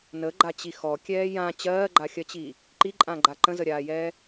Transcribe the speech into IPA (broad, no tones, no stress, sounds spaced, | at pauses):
n ə ɡ͡ǃ a t͡ɕ i x ɔ kʲ ɛː j ã t͡ɕ ɜː ɡ͡ǃ a xʲ ɜ t͡ɕ iː | ǃ i ǃʼ ã ɡ͡ǃ a ǃ ə̃ z ə ɾʲ aː j ɛː